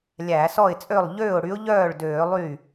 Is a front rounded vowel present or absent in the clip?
present